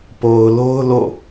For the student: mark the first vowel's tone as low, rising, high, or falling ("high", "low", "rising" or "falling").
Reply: low